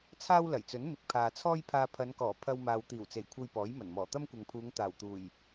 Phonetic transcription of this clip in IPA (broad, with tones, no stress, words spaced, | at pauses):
t͡sʰaː˥wlɐ˨˩jt͡sɵ˨˥n mɪ˨k̚pʰaː˨t͡sʰɔː˥jpʰaː˧ pʰɐ˨˧nkɔː˨˩ pʰɐ˧wmaː˨w t̪iː˨˩wt͡se˨˩jkʷʰɐ˨j pɔː˨˥jmɐ˨˩nmɔː˨˩ t̪ɐ˥mkʷɐ˨ŋpʰuː˨˧ŋ t̪aː˨˩wt̪uː˨˩j